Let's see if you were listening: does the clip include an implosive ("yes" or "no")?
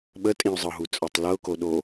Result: yes